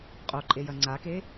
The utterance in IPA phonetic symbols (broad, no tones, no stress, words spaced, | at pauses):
qʼoǃʼejɐ ŋ͡ǀake